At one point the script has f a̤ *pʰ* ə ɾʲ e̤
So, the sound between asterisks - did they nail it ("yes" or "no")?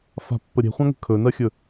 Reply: no